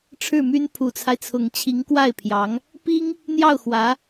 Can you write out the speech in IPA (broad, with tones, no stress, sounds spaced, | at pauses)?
ʈ͡ʂʰ ɻ̩˥˩ m y˥ n pʰ u˨˩ t͡sʰ a˦ ɪ̯ t͡sʰ ʊ˨˩ ŋ t͡ɕʰ i˧˥ ŋ k w a˥˩ ɪ̯ pʰ j ɑ˧˥ ŋ | p i˥ ŋ | n̪ j ɑ˥˩ ʊ̯ x w ä˧˥